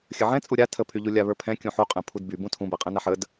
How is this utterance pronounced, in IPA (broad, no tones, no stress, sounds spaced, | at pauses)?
xʲ ə ʕ ɛ̃ t͡sʼ u ɾʲ a tʰ ə pʰ y ʎ u lʲ a β ə˞ pʰ ɛ̃ kʲ ũ ħ u qʼ ɛ̃ pʰ u d b y b ũ tʰ ũ b ɛ qʼ ɛ̃ n a ħ ə d